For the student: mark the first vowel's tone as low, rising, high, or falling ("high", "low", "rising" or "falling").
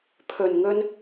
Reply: low